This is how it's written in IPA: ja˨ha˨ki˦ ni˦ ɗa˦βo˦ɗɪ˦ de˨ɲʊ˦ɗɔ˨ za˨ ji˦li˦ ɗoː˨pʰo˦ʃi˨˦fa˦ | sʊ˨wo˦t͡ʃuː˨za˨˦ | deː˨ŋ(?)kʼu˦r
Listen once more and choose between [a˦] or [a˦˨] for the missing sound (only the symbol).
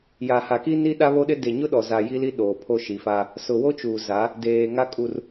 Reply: a˦